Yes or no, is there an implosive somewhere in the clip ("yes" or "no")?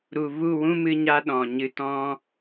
yes